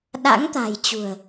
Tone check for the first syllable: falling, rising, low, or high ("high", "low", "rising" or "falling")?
rising